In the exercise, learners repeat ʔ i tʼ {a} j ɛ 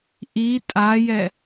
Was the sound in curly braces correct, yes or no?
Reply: yes